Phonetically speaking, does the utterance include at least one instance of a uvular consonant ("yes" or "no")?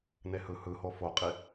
yes